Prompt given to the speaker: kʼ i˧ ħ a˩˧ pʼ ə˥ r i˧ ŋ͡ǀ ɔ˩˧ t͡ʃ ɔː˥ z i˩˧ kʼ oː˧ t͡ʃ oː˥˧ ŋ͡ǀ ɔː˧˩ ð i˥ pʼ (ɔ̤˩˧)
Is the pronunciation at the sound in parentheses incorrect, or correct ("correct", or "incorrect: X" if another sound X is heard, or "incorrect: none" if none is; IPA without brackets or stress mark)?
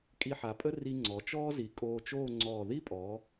incorrect: ɔ˩˧